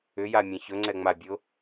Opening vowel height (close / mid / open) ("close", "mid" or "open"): close